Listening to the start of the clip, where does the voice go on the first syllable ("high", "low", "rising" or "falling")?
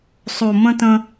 low